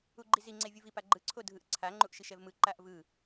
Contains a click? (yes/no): yes